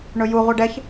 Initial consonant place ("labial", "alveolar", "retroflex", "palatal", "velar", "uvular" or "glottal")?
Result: retroflex